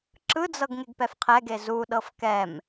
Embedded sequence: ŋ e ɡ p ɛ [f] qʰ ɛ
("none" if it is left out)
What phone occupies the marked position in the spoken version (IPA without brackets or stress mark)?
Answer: f